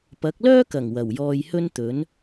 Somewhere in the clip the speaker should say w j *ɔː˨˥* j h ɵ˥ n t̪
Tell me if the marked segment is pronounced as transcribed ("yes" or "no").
no